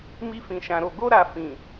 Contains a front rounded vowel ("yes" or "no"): no